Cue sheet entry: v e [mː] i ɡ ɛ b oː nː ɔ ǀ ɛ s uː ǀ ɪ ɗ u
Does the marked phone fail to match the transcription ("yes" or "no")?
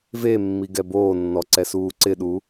no